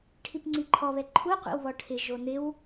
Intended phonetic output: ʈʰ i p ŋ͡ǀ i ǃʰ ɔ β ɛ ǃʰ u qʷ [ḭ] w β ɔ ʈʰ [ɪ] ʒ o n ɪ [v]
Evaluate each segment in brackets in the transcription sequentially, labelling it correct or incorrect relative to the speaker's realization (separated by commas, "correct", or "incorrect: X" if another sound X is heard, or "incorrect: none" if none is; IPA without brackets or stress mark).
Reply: correct, correct, incorrect: w